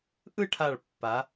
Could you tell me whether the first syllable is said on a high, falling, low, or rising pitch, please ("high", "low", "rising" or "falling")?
falling